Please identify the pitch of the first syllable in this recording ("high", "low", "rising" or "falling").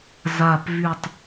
low